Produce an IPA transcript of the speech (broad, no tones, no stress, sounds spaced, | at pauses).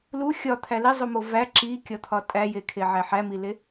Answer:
l u xʲ ɒ t̪ʰ æ l i zˤ u m o v æ ǁ i kʲ ɒ t̪ʰ ɒ tʼ æ j e kʰ e ʕ æ ħ æ m i l e